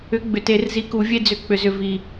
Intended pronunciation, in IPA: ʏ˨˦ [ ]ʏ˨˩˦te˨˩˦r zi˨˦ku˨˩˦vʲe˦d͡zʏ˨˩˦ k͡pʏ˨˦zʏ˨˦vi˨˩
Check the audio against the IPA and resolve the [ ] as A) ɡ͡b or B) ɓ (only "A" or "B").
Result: A